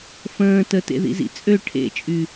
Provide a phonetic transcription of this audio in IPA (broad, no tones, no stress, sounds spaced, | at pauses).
f ə̃ː t ə t ḛ ð ḭ z ḭ t͡sʼ ø ʈʰ ḛ t͡ʃʼ y